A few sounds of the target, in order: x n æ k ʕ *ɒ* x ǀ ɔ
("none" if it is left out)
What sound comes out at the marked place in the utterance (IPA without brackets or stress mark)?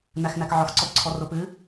ɒ